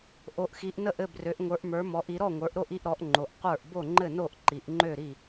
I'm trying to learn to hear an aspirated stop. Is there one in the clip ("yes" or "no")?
no